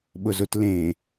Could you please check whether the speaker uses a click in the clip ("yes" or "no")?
no